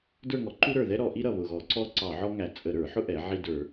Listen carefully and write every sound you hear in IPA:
də˞˦˨ŋɔ˩˧ ǃu˥ɾə˞˨˩ðɛ˥ ɾɔ˧˩˧ʔi˥ɾʌ˨˩ βʊ˨˩ɣɔ˧˩˧ǀɔ˥ ǀɑ˧˩˧ ʕɔ˥ŋæ˧˩˧ t͡sʼə˧˩˧ɾə˞˧˩˧ħʊ˥ʔɛ˩˧ ʕi˦˨də˞˧˩˧

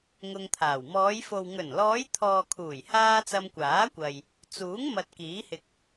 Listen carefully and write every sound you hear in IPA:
ŋʊ˧ŋt̪ʰaː˨˩w mɔː˨˧jfo˨w ŋɵ˨˩nlɔː˨˧j t̪ʰɔː˨kʰuː˨˩jhaː˧ t͡sɐ˧mkʷaː˨˥kʷɐ˨j | t͡suː˨˥ŋ mɐ˨t̚kiː˨˥hɪ˨k̚

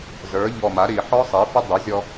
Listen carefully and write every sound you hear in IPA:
zə˞˩˥ʎɔ˧˩ma˩˥ɾi˧˩˧ ħɔ˦˥sˤi˩˥fə˦˥ dˤə˩˥zʲɔ˧

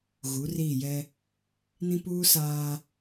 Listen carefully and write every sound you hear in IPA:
ɣu˨˦riː˦˨jɛ˦ | nĩ˦puː˦ saː˦

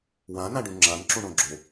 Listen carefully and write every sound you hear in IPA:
wãnãɖũ ŋ͡ǁãnǁũɳõ ɡ͡ǁo

